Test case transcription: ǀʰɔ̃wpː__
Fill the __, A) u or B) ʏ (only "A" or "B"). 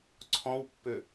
B